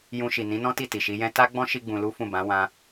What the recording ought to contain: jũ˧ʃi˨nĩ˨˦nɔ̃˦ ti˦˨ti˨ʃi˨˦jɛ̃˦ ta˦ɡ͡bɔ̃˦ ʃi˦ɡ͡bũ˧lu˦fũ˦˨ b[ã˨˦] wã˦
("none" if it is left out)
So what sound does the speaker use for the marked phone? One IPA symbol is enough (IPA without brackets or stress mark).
ã˨˦